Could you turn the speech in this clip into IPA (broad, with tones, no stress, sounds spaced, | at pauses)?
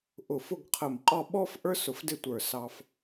ʔ ʊ˧˩ f ʊ˥˧ ɡ qʰ ə˧˩ m qʼ ɔ˥˧ ɓ ɔ˥ f ʔ ə˞˥ s ʊ˧ f d ɪ˥˧ tʷ ə˞˧˩ s ɑ˧ f